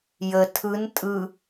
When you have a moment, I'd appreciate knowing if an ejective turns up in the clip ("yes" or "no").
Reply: yes